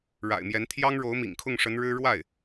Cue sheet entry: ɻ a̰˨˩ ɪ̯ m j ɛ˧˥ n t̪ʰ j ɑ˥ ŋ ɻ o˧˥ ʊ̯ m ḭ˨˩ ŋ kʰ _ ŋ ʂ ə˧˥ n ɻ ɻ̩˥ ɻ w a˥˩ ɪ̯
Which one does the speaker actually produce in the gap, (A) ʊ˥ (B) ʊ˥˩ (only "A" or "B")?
B